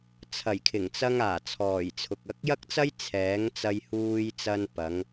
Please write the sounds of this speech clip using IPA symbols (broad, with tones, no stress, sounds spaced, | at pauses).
t͡sʰ ɐ˨˩ j kʰ ɪ˨˩ ŋ t͡s ɐ˧ ŋ aː˨˩ t͡sʰ ɔː˨˩ j t͡sʰ ʊ˨ k̚ ɐ˧ k̚ j ɐ˥ k̚ t͡s ɐ˥ j t͡sʰ ɛː˨˥ ŋ t͡s ɐ˧ j h uː˧ j t͡s ɐ˧ n p ɐ˨˧ ŋ